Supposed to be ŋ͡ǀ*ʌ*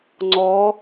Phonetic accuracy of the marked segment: incorrect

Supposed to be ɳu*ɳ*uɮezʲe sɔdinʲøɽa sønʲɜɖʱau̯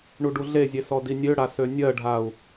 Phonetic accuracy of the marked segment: incorrect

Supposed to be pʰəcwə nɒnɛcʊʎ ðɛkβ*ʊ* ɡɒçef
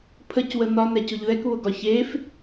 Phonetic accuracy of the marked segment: correct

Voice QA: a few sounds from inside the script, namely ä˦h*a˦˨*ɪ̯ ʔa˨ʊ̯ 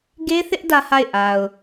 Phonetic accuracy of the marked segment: correct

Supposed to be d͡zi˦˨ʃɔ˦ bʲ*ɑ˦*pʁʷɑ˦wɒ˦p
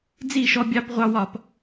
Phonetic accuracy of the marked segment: correct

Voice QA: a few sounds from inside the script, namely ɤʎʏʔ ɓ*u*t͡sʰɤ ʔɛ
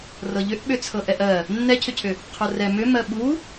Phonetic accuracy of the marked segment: incorrect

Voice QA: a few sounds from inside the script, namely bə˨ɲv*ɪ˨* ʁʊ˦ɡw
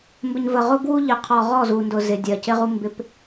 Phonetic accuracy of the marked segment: incorrect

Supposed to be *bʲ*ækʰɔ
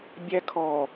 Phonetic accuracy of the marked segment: correct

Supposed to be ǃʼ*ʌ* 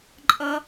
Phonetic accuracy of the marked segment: correct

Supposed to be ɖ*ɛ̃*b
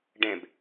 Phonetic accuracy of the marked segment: correct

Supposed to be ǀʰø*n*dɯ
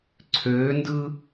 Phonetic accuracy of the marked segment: correct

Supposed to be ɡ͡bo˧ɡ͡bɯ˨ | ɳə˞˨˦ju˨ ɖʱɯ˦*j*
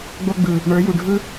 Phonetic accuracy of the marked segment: incorrect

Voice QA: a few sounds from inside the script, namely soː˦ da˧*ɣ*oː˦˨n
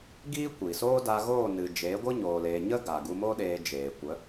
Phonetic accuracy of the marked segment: correct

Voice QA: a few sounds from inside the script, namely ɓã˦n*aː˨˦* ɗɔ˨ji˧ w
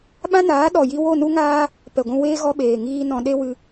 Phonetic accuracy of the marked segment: correct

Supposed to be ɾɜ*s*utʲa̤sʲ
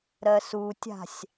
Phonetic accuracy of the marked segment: correct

